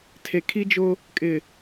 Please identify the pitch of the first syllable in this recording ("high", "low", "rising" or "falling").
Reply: low